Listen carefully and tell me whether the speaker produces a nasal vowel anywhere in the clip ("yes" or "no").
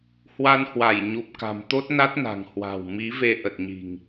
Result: no